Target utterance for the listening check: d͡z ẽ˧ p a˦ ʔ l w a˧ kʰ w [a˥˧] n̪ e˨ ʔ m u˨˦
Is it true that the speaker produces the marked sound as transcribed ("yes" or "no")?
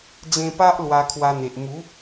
no